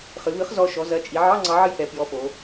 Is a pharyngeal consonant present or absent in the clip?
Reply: present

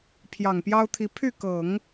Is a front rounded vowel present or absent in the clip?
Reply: present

